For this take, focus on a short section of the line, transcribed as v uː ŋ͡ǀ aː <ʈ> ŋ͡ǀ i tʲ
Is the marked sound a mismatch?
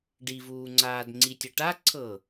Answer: yes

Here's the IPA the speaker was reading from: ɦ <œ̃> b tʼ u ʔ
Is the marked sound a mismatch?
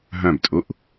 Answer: no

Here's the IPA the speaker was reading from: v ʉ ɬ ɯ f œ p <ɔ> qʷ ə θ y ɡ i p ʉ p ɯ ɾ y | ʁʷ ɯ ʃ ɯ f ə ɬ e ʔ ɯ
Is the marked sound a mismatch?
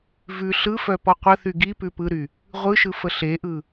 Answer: no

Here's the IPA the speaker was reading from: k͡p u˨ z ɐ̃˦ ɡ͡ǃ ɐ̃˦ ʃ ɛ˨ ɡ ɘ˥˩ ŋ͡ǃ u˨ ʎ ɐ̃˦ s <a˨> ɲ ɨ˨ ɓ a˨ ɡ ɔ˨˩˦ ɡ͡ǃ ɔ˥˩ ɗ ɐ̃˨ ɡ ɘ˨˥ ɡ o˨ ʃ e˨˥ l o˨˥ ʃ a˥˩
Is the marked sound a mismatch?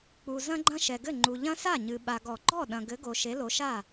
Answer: yes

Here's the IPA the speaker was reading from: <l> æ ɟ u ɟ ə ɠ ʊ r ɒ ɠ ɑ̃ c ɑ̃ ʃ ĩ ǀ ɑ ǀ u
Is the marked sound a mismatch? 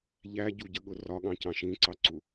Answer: yes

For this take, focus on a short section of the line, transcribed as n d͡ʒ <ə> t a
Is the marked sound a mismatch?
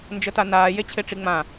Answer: no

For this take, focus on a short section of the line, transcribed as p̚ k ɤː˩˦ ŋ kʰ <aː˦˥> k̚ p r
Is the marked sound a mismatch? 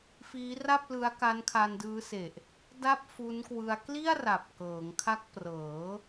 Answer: yes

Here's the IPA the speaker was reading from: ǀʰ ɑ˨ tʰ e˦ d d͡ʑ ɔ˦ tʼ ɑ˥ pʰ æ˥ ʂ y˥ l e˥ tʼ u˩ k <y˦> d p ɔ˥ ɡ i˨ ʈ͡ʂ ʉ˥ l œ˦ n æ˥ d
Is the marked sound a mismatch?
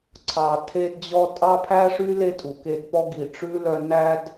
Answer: yes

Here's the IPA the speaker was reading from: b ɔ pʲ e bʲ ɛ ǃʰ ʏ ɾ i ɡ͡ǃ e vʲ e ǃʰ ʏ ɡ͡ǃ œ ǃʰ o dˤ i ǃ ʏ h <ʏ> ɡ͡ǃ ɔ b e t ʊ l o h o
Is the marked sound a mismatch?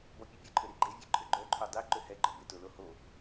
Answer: yes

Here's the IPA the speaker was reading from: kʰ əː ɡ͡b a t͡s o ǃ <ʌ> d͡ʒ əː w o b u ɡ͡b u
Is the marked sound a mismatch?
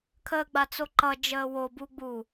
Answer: no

